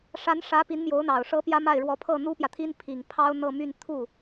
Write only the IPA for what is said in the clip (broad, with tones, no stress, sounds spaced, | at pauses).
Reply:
ʂ a˧˥ n ʂ ä˧˥ p i˧˥ n m j o˧˥ ʊ̯ n̪ ɑ˨˩ ʊ̯ ʂ ɤ˧˥ p j ä˥ m a˥˩ ɪ̯ ɻ w ɔ˧˥ pʰ ɤ˥˩ n̪ u˥ p j ä˨ t̪ʰ i˥ n pʰ i˨˩ ŋ pʰ ɑ˥ ʊ̯ n̪ ɤ˥˧ m y˥˧ n t̪ʰ u˥˩